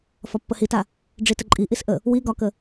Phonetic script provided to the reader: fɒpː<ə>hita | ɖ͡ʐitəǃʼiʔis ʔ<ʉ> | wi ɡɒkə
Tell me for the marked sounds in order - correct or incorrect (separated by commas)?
correct, incorrect